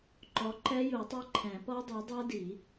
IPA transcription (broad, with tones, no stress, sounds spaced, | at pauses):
ǃ ɔ˨˥ ǃ ɛ˦˥ j u˨˩˦ tˤ e˦˥ ǃʰ ɛ̃˨˩˦ p ɔ˦˥ dˤ e˨˥ dˤ a˦˥ d i˨˩˦